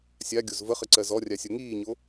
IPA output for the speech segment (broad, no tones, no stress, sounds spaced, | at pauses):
sʲ a ɡʲ o z v ə χ ə ǀ ɜ z ɔ rʲ a sʲ o ŋ iː ɲ o